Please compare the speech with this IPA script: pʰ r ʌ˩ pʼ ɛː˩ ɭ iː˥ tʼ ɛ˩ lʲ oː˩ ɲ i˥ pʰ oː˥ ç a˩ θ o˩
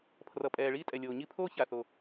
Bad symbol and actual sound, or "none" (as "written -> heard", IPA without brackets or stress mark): none